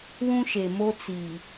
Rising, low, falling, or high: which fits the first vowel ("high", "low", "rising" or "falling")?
high